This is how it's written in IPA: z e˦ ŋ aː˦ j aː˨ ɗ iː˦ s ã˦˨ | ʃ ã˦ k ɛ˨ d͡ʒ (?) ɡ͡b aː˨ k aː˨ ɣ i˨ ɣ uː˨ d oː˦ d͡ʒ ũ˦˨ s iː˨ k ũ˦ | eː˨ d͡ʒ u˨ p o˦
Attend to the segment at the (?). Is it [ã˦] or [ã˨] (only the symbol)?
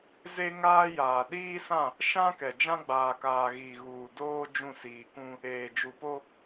ã˦